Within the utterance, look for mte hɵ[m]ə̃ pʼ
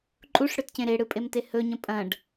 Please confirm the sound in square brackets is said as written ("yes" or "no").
no